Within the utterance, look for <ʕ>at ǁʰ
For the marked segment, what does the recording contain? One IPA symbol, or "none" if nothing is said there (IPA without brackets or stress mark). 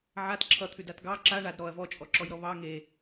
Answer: ʕ